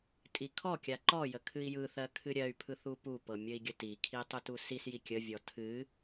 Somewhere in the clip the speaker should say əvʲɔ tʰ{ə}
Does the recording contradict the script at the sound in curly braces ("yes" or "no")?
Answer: yes